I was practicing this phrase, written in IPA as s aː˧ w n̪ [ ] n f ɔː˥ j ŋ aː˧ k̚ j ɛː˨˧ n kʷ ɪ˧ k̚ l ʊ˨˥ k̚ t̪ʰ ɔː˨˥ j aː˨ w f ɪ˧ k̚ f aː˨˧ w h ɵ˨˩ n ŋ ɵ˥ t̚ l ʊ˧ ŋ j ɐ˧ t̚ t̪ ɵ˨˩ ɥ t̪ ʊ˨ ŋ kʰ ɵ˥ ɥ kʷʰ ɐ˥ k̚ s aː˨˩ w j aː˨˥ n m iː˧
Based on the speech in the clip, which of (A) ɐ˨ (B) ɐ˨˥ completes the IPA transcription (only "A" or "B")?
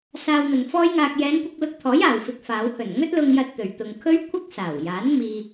A